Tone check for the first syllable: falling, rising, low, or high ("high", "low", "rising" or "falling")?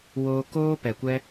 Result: high